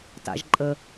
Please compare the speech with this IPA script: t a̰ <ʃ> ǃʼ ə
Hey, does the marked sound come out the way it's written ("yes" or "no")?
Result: no